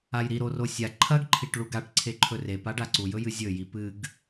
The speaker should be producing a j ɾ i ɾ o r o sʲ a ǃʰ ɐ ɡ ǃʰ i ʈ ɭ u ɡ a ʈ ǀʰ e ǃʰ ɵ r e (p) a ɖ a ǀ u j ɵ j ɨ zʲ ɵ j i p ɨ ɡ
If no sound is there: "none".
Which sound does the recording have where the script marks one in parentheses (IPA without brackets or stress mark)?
p